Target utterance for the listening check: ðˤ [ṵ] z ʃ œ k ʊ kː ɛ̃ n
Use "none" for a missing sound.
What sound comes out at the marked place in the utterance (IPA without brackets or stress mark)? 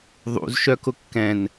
ṵ